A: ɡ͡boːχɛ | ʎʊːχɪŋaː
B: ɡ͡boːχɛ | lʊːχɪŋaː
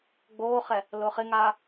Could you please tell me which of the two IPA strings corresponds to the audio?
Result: B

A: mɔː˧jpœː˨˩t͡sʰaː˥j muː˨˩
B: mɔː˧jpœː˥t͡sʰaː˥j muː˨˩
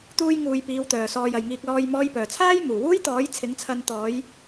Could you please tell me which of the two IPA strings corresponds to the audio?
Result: A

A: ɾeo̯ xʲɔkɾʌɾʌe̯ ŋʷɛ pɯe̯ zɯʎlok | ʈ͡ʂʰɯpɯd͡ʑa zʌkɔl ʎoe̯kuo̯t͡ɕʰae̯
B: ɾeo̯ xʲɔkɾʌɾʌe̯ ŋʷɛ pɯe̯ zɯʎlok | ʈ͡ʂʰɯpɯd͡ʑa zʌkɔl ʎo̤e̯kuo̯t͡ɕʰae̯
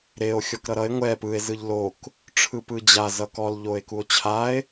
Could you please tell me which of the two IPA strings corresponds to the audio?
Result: A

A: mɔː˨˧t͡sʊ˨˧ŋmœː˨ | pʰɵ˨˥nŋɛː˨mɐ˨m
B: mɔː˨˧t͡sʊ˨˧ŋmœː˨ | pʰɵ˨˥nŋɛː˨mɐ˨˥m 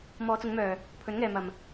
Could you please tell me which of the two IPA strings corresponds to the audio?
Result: A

